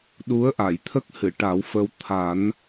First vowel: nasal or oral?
oral